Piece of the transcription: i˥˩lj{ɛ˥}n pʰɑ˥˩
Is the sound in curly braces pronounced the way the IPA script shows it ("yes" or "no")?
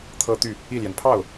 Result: no